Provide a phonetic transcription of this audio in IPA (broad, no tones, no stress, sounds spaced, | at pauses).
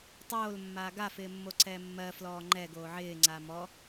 tˤ oː l mː aː ɡ a f ɪː mː o ǀ ɛː mː ɜ f l ɔː ŋ͡ǃ ɛ ɡ oː ʕ ɪː ŋ͡ǀ a m ɔ